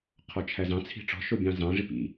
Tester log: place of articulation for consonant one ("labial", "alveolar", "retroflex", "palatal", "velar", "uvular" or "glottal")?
uvular